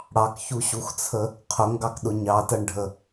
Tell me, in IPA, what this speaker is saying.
ɽ ɑ k ç u ɕ u x t͡sʰ ə | qʰ ʊ ŋ ɡ ɑ k ɗ ʊ ɲ ɑ t ʌ ɳ ɖʱ ə

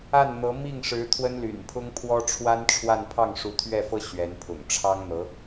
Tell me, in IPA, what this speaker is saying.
a˥˩ n n̪ ɤ˧˥ m i˥˩ ŋ ʂ ɻ̩˧˥ t̪ʰ w ə˥ n l y̰˨˩ n pʰ ʊ˥ ŋ pʰ w ɔ˥ ʈ͡ʂʰ w a˥ n ʈ͡ʂʰ w a˥˧ n pʰ ɑ˥˩ ŋ ʂ u˧˥ t̪ʰ ɥ ɛ˥˩ f ɤ˥ ɕ ɥ ɛ˧˥ n pʰ ʊ̰˨˩ ŋ ʈ͡ʂʰ ɑ˥ ŋ n̪ ɤ˧˥

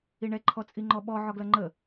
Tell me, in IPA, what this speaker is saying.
i ɳ ɛ ǃʰ ɔ t͡sʼ i ŋ͡ǃ ɔ ɓ ɔ ʕ ɔ ɡ l ʌ ŋ͡ǃ ə

